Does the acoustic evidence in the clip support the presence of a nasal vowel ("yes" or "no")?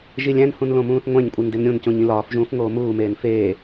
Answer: yes